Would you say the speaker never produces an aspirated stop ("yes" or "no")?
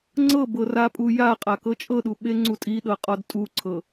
no